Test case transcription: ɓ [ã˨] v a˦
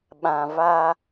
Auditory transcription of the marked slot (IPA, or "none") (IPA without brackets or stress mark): ã˨